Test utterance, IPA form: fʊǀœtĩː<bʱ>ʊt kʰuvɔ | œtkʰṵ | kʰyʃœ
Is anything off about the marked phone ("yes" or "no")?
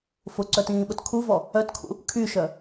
yes